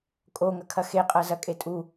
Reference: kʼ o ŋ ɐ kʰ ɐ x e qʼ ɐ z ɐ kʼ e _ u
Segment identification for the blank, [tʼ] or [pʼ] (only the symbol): tʼ